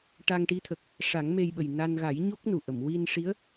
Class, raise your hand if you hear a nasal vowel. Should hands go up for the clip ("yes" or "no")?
no